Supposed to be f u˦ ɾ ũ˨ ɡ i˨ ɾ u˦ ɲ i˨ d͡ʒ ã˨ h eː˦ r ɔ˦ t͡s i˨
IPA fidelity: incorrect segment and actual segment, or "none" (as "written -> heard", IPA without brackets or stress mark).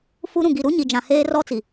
none